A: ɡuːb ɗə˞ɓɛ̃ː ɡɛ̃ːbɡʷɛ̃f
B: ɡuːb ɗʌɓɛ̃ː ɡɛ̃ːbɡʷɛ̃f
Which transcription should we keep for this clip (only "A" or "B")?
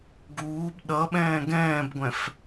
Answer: B